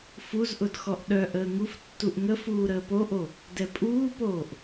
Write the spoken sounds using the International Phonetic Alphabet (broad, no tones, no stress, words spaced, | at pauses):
fuzʔʊd xɔʔɗœʔəː ŋuf tːuʔŋəfuː ɾəːpoʔo | dɛpʼuːpoːʔ